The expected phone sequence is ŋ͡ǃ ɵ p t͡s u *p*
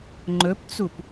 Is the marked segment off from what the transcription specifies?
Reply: no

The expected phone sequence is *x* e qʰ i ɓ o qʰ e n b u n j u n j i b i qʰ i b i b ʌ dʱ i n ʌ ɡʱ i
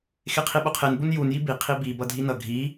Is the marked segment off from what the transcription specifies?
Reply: no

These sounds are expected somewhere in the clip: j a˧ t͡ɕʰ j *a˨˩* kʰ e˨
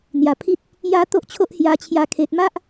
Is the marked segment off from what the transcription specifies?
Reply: yes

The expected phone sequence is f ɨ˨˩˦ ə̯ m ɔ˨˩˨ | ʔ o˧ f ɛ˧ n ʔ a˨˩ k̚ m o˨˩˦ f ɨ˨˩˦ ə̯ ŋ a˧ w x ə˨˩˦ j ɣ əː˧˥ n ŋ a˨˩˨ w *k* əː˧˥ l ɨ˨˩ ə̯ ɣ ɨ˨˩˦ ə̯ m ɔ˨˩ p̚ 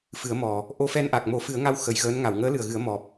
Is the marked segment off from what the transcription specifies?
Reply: yes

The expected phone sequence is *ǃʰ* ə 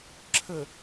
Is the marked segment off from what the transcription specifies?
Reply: yes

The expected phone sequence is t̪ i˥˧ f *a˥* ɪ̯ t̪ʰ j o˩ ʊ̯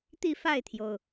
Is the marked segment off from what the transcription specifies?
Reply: yes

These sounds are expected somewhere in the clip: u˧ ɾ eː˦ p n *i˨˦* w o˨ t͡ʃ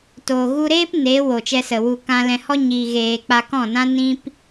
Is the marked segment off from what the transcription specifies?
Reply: yes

